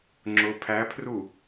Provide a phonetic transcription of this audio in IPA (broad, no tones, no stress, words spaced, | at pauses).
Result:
ŋ͡ǁʊ pʰæpʰru